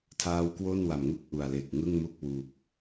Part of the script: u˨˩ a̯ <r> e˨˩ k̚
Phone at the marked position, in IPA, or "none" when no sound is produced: l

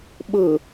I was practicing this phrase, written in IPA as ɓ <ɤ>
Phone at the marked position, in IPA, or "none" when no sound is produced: ɤ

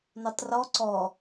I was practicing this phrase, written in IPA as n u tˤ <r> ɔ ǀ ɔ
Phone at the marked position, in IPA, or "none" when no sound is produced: r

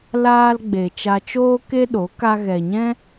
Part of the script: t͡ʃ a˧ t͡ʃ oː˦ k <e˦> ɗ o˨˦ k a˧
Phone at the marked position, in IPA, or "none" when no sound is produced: e˦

